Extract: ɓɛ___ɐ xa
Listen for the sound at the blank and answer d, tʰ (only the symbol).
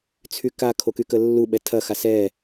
tʰ